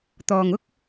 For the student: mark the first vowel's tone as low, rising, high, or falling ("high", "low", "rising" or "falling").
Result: low